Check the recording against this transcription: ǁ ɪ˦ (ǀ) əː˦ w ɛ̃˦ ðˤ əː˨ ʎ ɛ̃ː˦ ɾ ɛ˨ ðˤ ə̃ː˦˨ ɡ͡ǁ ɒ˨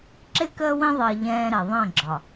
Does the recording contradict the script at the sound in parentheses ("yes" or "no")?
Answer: yes